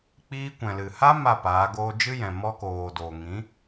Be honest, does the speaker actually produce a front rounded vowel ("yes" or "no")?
no